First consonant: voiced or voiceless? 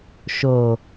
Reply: voiceless